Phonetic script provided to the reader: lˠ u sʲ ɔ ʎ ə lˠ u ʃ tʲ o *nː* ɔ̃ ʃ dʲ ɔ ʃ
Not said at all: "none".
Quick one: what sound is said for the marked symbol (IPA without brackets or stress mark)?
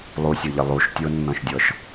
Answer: nː